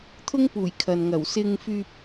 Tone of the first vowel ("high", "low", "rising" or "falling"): high